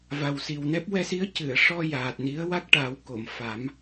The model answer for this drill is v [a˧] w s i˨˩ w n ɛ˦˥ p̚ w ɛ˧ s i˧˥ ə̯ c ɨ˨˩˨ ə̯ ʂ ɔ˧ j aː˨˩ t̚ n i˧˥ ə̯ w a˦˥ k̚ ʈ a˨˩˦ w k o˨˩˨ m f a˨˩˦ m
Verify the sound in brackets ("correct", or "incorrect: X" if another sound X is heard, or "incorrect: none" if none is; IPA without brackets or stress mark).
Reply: incorrect: a˨˩